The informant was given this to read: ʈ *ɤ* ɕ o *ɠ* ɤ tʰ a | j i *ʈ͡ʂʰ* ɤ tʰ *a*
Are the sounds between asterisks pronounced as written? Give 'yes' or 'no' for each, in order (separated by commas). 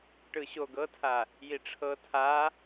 no, no, yes, yes